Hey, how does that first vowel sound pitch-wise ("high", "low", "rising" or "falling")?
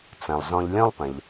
low